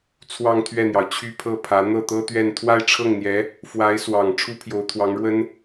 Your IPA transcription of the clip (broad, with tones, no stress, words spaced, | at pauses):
t͡sʰwɑ˥˧ŋt̪ʰɥɛ˥˩n̪jɑ˩ʊ̯ t͡ɕʰy˥˧ pʰɤ˥˩pʰä˧˥ n̪ɤ˥˩t̪ɤ˥t̪ɥɛ˥˧n t̪ʰwa˥˧ɪ̯ʈ͡ʂʰɤ˥˩ŋn̪jɛ˧˥ | fwa˧˥ɪ̯swɑ˨˩ŋ ʈ͡ʂʰu˥pʰjo˧˥ʊ̯t̪ʰwɑ˧˥ŋɻwə˥n